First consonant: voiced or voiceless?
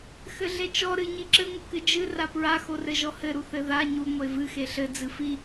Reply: voiceless